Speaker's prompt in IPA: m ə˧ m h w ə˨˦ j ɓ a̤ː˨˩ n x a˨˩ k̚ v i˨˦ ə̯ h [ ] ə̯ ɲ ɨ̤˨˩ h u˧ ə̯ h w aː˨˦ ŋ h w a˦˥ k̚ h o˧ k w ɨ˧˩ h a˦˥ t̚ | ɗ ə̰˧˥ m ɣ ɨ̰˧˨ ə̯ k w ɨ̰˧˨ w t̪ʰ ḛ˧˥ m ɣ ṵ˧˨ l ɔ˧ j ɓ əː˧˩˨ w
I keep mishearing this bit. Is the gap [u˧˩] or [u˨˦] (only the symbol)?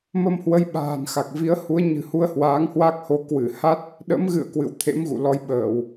u˨˦